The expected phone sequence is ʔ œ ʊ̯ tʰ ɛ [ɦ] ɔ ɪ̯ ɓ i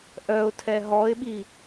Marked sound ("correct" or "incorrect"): correct